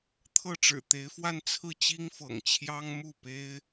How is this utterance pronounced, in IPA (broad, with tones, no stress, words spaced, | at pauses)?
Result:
t̪ʰɤ˥˩ʈ͡ʂɻ̩˨˩t̪e˧˥ɪ̯fwa˥˧n t͡sʰɹ̩˥˩t͡ɕi˥ŋfɤ̰˨˩ŋ t͡ɕʰjɑ˥ŋmu˥˩pe˥ɪ̯